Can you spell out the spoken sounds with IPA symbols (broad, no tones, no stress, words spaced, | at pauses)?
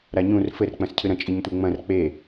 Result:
ɾaɲũr fɘr k͡pɐ̃scʰɨɾɐ̃ t͡ʃʼiɲtʷeŋ͡mɐ̃r k͡pe